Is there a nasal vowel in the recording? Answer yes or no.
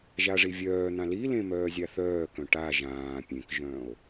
yes